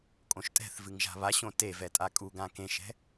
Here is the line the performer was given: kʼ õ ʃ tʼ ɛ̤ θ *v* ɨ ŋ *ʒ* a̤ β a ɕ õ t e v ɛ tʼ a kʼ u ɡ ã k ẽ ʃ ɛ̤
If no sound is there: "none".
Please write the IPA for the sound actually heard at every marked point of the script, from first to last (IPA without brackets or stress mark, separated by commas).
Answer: v, ʒ